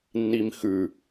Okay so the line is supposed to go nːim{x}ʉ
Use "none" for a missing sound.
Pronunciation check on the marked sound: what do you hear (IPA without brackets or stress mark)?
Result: x